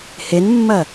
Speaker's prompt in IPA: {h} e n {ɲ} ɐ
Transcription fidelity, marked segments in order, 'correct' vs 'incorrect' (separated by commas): correct, incorrect